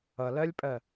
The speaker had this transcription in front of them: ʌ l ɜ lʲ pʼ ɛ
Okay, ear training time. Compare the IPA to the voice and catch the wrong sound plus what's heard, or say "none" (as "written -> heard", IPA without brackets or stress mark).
ɛ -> ɜ